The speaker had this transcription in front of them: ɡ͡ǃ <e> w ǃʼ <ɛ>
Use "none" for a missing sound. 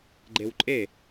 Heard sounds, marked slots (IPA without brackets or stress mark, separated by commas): e, e